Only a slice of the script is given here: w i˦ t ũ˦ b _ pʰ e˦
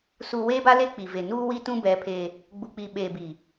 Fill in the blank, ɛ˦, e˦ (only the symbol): ɛ˦